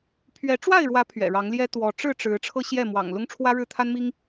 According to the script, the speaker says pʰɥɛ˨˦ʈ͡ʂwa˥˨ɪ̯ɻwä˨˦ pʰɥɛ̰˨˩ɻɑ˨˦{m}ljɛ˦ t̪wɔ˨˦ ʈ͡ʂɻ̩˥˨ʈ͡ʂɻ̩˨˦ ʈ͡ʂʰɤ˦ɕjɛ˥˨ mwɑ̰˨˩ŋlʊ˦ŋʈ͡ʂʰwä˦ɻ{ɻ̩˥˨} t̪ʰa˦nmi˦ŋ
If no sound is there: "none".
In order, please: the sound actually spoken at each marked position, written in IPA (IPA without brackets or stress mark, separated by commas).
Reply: ŋ, ɻ̩˥˨